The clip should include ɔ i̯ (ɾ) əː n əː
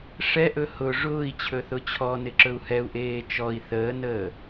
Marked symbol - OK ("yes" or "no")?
no